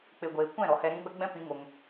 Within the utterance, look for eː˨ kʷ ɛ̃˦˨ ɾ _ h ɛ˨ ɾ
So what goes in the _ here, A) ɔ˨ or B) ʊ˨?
A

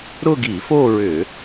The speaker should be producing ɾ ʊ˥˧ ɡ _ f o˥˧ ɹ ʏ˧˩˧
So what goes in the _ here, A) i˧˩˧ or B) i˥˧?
A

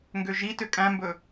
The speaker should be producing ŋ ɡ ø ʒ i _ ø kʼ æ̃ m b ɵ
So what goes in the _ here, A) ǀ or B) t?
B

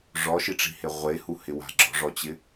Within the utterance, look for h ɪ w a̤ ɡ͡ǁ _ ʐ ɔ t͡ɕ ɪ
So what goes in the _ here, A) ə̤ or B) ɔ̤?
B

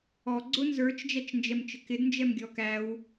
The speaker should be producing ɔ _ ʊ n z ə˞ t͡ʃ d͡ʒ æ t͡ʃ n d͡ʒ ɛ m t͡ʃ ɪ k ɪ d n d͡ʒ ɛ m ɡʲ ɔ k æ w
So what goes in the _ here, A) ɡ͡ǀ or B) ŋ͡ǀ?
A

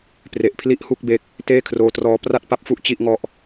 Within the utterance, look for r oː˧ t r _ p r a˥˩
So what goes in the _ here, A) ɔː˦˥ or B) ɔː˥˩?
A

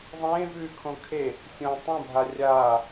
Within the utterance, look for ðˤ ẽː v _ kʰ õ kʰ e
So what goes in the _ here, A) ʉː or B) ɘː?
A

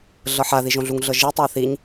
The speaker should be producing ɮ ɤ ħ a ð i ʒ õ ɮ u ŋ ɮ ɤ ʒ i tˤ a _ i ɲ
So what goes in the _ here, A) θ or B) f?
A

